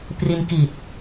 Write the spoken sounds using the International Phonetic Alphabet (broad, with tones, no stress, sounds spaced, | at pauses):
p r i˧ n k i˨˩ t̚